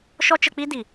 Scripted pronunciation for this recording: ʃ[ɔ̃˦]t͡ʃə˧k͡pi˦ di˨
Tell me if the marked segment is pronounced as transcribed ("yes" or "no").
no